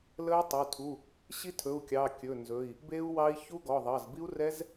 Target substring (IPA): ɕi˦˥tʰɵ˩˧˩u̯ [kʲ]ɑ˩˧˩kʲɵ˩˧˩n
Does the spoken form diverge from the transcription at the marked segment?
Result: no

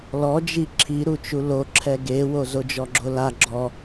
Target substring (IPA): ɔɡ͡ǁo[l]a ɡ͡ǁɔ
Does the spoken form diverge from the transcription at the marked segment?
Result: no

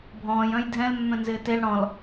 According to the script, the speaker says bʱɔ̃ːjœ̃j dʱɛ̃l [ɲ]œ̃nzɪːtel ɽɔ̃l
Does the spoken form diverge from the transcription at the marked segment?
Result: yes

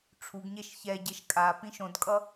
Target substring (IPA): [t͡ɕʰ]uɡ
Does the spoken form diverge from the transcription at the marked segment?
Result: yes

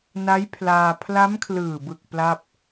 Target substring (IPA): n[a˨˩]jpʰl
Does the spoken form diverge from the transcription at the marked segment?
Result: yes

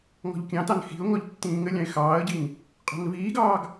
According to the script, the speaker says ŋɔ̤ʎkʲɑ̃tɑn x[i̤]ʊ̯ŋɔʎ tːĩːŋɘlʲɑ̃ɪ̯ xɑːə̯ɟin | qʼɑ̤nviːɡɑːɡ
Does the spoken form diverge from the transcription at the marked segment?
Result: no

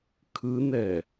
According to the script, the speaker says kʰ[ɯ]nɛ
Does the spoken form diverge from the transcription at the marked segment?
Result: no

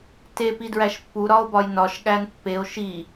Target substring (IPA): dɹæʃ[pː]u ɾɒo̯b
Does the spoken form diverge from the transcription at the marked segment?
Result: no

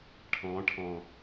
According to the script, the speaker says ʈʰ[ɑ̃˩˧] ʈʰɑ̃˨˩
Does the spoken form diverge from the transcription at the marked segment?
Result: no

